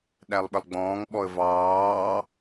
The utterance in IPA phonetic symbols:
ɗælˠɓəlˠɡ͡bɔ̃ːŋɓɔə̯ vɑː

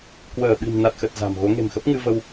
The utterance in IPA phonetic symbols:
kwəː˧˩ɓi̤˨˩mna˨˩t̚xə˨˩t̚ za̤˨˩mɣo˨˦ ŋe̤˨˩mxə˦˥p̚ŋɨ˧ və˧w

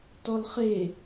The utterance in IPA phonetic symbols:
tɔlχe

